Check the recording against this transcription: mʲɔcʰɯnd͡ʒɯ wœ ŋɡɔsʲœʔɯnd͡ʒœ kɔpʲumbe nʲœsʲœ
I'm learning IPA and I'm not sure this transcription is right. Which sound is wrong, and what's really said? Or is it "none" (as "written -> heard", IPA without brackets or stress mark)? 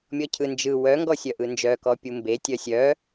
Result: nʲ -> tʲ